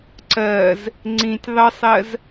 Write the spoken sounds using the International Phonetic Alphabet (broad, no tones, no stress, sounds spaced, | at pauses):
ǀ ɜ z | ŋ͡ǀ ĩ tʲ ðˤ ə sˤ ɜ z